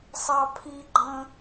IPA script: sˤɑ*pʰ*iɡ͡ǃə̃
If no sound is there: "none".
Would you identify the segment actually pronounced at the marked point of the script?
pʰ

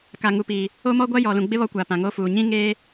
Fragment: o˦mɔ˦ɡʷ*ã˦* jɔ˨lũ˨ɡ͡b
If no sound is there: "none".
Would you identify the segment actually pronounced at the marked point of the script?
a˦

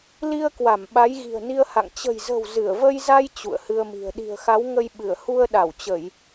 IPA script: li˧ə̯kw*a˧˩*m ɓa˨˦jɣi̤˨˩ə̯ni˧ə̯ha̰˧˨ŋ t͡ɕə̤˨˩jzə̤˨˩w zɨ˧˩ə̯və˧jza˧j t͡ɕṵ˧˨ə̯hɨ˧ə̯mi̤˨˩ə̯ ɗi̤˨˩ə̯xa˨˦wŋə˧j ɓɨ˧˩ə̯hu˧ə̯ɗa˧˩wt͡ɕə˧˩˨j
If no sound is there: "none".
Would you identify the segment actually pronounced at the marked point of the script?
a˧˩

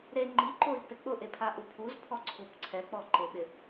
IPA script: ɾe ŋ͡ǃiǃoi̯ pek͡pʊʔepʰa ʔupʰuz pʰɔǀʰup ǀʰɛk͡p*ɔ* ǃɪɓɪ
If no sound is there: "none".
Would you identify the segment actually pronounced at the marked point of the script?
ɔ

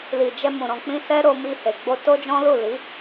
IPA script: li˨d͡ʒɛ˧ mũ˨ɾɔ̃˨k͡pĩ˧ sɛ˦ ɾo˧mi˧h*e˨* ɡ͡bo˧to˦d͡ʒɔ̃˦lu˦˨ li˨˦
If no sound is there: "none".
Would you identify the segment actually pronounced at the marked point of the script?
e˨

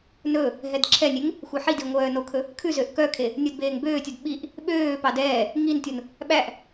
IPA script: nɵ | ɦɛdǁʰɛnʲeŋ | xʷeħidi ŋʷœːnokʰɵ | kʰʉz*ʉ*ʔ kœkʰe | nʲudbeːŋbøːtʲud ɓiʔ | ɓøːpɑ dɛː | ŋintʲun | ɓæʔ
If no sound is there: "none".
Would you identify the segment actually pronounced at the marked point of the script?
ø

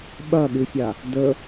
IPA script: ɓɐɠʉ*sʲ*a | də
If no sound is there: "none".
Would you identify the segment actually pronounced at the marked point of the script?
sʲ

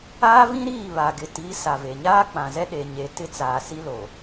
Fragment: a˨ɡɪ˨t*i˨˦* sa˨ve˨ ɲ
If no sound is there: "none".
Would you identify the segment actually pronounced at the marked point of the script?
i˨˦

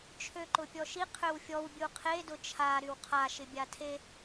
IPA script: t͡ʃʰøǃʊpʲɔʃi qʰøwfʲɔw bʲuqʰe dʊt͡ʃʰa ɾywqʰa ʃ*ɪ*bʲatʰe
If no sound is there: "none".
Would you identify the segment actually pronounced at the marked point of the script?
ɪ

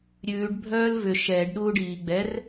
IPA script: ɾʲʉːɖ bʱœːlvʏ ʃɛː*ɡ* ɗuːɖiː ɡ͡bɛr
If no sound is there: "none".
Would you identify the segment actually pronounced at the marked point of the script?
ɖ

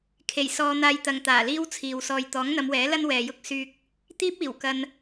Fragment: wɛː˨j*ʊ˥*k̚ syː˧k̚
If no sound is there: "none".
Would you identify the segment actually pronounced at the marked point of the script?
ʊ˥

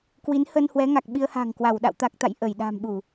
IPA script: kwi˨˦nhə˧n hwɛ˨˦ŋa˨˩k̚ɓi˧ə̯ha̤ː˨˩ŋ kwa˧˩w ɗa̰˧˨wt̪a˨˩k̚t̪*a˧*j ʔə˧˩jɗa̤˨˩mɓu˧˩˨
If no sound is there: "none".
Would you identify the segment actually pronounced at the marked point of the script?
a̰˧˨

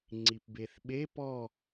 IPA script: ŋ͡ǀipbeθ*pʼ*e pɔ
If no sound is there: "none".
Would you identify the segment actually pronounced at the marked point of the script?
ɓ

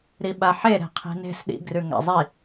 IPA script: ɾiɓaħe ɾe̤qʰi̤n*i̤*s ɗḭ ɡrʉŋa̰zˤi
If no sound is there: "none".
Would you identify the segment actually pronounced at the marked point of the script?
e̤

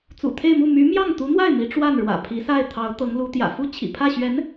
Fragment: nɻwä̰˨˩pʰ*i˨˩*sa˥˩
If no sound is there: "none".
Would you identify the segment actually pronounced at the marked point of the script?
i˧˥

